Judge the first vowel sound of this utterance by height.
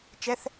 mid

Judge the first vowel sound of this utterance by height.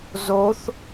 mid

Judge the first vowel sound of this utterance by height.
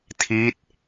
high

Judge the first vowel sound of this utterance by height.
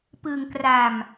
high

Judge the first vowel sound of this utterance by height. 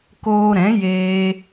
mid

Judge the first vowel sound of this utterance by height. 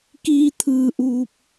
high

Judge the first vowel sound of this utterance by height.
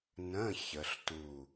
mid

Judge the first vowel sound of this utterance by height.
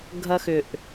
low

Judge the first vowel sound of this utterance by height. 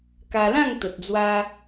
low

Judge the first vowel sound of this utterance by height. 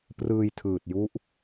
high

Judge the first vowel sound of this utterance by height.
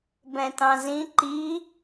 mid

